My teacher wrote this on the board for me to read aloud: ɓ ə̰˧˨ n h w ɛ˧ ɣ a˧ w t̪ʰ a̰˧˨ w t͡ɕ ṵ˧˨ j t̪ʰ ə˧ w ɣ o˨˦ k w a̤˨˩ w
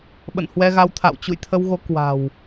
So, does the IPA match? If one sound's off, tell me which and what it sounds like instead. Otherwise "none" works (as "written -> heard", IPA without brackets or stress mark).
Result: none